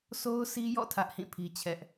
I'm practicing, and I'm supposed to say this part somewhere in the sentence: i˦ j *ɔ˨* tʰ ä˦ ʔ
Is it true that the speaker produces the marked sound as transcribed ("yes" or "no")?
no